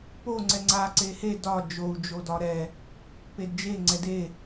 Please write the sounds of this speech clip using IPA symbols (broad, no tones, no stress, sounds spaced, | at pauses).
p o ŋ͡ǀ ɛ ŋ͡ǀ a ǀ e h e d ɒ d͡ʒ o u̯ d͡ʒ o d ɒ ɾ ɛ | p e d d͡ʒ e ŋ͡ǀ ɛ d e